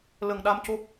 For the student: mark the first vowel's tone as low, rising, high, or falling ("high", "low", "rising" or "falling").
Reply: low